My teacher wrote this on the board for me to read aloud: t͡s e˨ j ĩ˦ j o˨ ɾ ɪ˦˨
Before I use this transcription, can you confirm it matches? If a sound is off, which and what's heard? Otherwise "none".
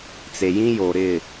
none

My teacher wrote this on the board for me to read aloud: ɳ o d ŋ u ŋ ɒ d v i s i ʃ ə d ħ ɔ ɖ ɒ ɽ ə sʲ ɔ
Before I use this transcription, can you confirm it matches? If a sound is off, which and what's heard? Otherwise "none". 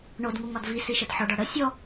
none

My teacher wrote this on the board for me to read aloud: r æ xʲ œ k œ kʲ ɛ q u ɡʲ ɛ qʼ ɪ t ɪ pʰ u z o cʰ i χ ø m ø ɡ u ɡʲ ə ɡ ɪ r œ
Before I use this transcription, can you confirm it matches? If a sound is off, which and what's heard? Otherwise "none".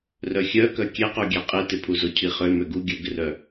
æ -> œ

